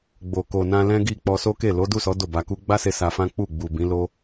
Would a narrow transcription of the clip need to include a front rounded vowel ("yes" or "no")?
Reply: no